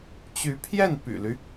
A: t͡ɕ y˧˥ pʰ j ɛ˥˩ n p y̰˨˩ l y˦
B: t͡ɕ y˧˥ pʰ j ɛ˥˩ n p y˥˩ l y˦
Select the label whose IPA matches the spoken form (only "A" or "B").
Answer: A